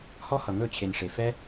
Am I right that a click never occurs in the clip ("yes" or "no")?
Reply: yes